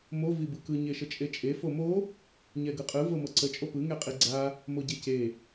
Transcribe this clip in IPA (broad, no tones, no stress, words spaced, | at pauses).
mo vibɯkɯ ɲeʃət͡ʃʼet͡ʃʼe fomo | ɲɛɡɯqʼɯ vɤmɤǀə t͡ʃʼopɯ ŋɛqʼiɡ͡ǀa | moɟece